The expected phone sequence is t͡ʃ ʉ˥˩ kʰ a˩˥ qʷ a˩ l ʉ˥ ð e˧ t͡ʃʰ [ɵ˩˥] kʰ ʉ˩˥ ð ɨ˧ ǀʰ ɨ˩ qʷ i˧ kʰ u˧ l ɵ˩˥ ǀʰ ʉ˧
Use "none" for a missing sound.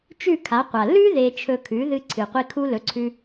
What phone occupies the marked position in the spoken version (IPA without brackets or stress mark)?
ɵ˧